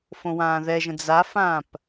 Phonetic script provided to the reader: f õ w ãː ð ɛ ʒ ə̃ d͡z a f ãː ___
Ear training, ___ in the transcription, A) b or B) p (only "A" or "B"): B